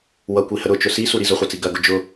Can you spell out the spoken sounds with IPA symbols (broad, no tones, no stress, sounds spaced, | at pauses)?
w ʌ kʷ i h ə ɾ ʊ t͡ʃ ʊ s i s u ɾ i z ʊ χʷ ɜ t͡s i ɡ ɐ ɡ ʊ d͡ʒ ʊ